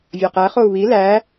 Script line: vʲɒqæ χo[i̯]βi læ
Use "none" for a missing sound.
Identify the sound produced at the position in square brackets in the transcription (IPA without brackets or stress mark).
u̯